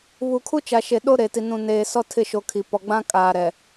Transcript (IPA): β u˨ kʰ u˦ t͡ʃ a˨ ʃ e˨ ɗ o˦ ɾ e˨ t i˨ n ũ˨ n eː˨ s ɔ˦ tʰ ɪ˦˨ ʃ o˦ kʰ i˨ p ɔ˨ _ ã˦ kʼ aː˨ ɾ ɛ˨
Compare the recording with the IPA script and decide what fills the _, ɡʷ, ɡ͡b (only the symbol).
ɡ͡b